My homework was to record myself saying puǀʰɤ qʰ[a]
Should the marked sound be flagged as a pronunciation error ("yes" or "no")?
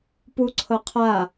no